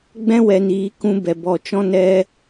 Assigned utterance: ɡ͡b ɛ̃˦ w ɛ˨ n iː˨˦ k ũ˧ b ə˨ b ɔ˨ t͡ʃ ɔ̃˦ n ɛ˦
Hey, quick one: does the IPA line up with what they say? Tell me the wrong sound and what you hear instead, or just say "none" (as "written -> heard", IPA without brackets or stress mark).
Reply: ə˨ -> ɛ˨